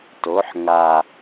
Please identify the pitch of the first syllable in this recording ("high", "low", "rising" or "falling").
rising